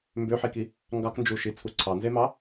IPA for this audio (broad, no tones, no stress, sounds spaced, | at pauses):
m b ø ħ i k i | ŋ ɡ ɑ k n d͡ʒ u ʃ i t͡sʰ u ǀʰ ɑ n z e m ɑ